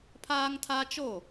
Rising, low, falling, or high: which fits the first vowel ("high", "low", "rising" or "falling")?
high